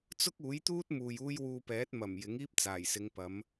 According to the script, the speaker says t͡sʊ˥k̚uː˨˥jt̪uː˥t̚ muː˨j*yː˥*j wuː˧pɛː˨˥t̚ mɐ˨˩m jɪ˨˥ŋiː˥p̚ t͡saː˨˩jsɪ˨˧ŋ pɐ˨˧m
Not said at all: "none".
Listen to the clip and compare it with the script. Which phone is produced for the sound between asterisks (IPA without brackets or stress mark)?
uː˥